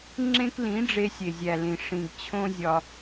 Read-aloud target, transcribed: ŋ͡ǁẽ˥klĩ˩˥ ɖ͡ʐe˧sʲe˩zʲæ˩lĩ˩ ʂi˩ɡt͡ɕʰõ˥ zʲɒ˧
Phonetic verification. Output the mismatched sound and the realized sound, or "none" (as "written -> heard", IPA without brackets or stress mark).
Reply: i˩ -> ĩ˩